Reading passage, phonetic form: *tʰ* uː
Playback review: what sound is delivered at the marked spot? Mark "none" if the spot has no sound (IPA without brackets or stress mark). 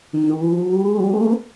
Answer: n